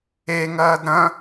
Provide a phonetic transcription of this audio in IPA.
e ŋ ɐː d ɾ ɐ̃

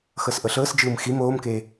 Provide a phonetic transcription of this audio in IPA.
x ɤ s ʔ ɤ ɬ ɤː s d͡ʒ ɯː m x i m oː m k eː

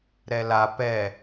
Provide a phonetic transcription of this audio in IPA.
ɾ ɛ l a p ɛ

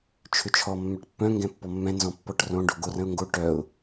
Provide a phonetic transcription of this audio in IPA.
t͡ʃʰ ʏ t͡ʃʰ ɔ mː œ ʈ pː œ̃ ŋ ɡ ɛ̃ pː ɔ mː ɛ̃ n z ɔ̃ pː ɔ ʈ r õ ɖ o ɡ o r ə̃ ʊ̯ ŋ ɡ o ʈ œ ʊ̯

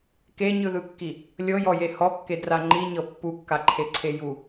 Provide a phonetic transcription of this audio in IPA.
k e ɲ ɯ ð ɯ kː i | lʲ ɤ j ɔ j e h ɔ kː e d r a ŋ͡ǃ i ɲ ɤ pː u kː a ǃʰ e ǀʰ e j u

